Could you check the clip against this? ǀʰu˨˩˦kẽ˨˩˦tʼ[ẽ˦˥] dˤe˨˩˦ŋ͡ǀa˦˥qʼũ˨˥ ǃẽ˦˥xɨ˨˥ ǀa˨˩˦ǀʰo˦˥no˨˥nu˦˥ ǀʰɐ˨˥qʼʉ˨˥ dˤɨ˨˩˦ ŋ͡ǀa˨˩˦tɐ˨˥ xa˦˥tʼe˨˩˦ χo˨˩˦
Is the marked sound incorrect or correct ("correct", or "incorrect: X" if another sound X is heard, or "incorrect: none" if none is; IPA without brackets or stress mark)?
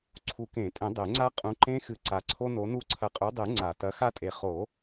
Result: incorrect: ẽ˨˩˦